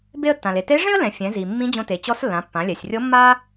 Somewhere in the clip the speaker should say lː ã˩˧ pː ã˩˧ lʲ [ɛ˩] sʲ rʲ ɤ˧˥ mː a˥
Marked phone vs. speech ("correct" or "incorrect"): correct